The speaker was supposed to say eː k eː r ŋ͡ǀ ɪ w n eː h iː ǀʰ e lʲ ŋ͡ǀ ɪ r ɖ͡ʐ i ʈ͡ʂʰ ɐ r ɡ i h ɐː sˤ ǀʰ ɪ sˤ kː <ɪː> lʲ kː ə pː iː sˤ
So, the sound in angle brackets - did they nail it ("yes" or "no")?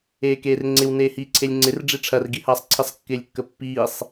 yes